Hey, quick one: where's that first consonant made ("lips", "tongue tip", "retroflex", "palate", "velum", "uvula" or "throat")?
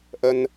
throat